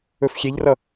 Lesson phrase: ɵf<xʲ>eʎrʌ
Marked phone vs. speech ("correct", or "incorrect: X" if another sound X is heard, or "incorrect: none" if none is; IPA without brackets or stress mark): correct